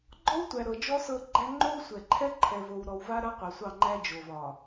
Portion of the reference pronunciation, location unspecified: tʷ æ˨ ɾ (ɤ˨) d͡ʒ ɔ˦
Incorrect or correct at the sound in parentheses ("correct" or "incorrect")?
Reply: correct